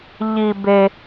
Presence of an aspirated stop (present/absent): absent